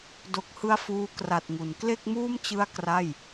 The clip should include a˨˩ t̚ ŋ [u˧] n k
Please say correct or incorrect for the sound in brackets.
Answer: incorrect